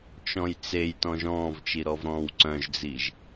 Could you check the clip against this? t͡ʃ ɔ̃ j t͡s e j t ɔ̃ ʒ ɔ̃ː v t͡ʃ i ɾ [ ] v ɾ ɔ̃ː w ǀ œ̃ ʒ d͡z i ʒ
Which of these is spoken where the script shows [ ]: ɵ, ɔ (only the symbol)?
ɔ